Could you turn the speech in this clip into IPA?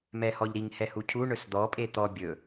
m ɛ h ɔ ʎ ɾ i ŋ h ɛ h u cʰ u ɳ ɵ s d̪ ɔ pʼ e t̪ ɔ bʲ ɵ

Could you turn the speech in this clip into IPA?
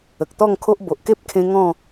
ə˨ k̚ t̪ ɔ˥˧ ŋ kʰ o˦ ʔ b o˨ ʔ k e˦ p̚ kʰ ẽ˧ ŋ ɔ̃˥˧

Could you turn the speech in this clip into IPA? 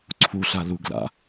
ǀʰ u ɬ a l u ɡ l a̰

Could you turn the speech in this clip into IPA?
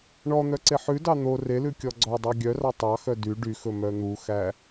ɳ ɔ n̪ œ ǀ e ħ ʉ d ɑ n̪ o r e l ʉ kʲ ɔ ɡ͡ǀ ɔ dˤ ɑ ɡʲ œ r ɑ tˤ ɑ x œ d y ɖ y x ɵ m œ n̪ u x æ

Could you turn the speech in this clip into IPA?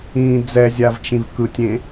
ĩː d͡z ɛ zʲ a v t͡ʃ ĩ v k ɯ tʲ ẽ

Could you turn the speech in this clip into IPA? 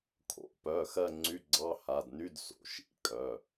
kʰ o̰˨˥ p œ˩˧˩ x ɜ˦˨ ŋ͡ǀ y˧˥˧ ɡ͡ǀ ɑ˧˥˧ h a˩˧˩ d n y˧˥˧ d s o̰˩˧˩ ʃ ḭ˧˥˧ kʼ œ˩˧˩

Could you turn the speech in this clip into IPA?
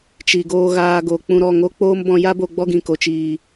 t͡ʃ i˨ ɡ oː˧ ɣ aː˧ ɡ oː˨ k͡p ũ˧ ɾ ɔ˦˨ ŋ o˦ k͡p oː˦ m b ɔ̃˧ j a˦ b o˧ ɡ͡b ɔ˦ ɡ ĩ˨ k o˨ t͡ʃ iː˨

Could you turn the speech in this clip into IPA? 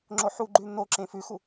ŋ͡ǁ o ħ u ɡ͡ǃ ʉ n̪ o ǁ ẽ f ʉ x u

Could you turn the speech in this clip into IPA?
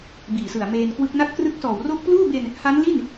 b iː˨˩ s ɯ˨˩ a̯ m eː˧ n k w ɯ˦˥ k̚ n a˦˥ t̚ k r ɯ˦˥ k̚ s ɔː˨˩ w r o˦˥ k̚ p l uː˥˩ b e˧ n | h a˦˥ n l i˥˩ n

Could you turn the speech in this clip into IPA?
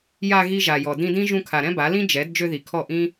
j a˧ ɣ i˦ ʒ a˨ j ɔ˨ d ĩ˧ d ĩ˦ ʒ ũ˧ kʰ a˨ ɾ ɛ̃˦ b a˨˦ l ĩ˦ d͡ʒ ɛ˨˦ d d͡ʒ ø˧ ð i˨ kʰ ɔ˦˨ ʔ ĩ˦

